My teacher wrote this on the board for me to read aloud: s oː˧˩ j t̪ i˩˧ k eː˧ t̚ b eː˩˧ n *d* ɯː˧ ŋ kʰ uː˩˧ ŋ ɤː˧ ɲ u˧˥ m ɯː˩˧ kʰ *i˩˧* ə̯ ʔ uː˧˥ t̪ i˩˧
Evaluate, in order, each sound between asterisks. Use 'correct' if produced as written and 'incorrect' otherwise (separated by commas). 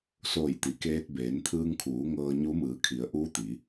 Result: incorrect, correct